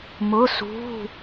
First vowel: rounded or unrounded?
rounded